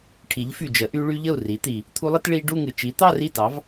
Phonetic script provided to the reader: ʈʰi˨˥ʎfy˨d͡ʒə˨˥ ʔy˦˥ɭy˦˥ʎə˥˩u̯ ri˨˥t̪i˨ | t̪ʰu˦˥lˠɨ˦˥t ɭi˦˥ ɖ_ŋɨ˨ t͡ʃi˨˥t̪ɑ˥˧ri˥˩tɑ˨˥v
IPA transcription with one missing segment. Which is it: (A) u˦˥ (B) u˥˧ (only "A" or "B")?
B